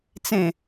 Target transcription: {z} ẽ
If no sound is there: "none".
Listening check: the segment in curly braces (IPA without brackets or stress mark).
t͡s